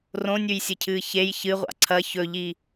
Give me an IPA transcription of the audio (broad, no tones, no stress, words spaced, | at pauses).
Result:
rõnʲʉjsʲɨcʰɨː çej çɨʁʷa̰ ǀʰɐ çɵʎi